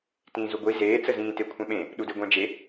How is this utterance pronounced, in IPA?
t ĩː z u ɡʷ i z eː t͡s ə z ĩː t e kʷʰ ɛ̃ ɓ ẽ | ɗ u d e ɡʷ ɛ̃ d͡ʒ e

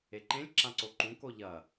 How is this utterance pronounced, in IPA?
e ǃ ẽ lʲ ǁ ã ǀ o ǃ ũ k o ʎ ɐ

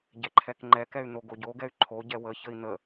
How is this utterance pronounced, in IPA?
ɟ ɛ ǃʰ ɛ k ŋ͡ǃ ɛ k ɛ y̯ n̪ o ɡ o ɟ o ɡ ɛ y̯ ǃʰ o ɟ ɛ w ə ç ə i̯ n̪ ə

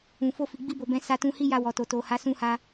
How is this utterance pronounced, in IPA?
ũ˨ f o˧ f i˨ ɡ͡b i˧ b o˨ b ɛ̃˨˦ s a˧ t ũ˧ h i˦ j a˧ w ɔ˨ t o˨ t o˨ h a˨˦ s ũ˧ h a˧

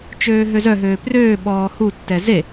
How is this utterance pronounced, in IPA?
t͡ʃ øː ɦ ø z œ ɦ øː p r øː ɓ ɔː h u tː ɛ z e

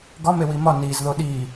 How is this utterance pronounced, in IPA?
ɡ ɒ m e w i m ɒ n i z ð o ɗ i

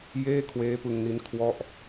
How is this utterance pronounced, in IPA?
j eː˥˩ kʰ w eː˦˥ p ɯ˧ ŋ n i˦˥ n kʰ w ɔ˥˩ ʔ

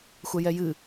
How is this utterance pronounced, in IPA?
xʷ ɛ j ɛ j ɨ

